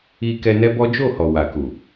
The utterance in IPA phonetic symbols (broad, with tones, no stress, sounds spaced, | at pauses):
i˧ k ɛ˧ n ɛ˦ b ɔ˦ d͡ʒ o˦˨ h ɔ˨ w a˨ k u˨